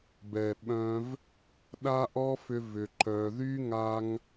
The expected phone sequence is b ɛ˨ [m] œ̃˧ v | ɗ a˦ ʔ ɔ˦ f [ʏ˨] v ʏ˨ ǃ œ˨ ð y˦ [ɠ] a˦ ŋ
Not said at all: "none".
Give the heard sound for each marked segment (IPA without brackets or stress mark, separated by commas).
ɓ, ʏ˧, ŋ